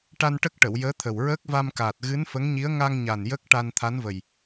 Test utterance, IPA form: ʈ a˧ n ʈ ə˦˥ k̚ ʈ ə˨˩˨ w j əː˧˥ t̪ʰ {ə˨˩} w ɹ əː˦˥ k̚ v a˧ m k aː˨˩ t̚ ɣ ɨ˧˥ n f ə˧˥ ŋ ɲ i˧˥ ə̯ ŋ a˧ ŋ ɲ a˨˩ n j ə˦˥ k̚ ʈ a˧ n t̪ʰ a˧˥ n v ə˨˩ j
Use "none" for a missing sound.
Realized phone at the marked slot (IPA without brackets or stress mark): ə˨˩